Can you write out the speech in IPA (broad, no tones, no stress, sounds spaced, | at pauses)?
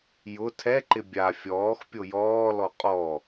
j ʊ tʰ ɛ ǃ ɪ bʲ a fʲ ɔː x pʲ o j ɔː l ɔ qʼ ɔ